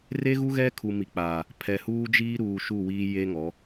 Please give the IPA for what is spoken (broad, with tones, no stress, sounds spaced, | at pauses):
r e˦ ɣ u˦ ɣ ɛ˦ kʰ u˨ m i˨ k͡p aː˨ | pʰ ɛ˨ h uː˦ d͡ʒ iː˦ ɾ uː˨ ʃ u˦˨ w iː˦ j e˦ ŋ ɔ˨˦